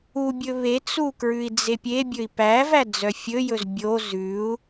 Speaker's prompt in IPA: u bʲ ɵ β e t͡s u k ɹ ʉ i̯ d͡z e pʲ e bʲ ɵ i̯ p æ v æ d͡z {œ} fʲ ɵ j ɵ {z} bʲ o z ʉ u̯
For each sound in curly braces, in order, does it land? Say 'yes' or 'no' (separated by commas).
yes, yes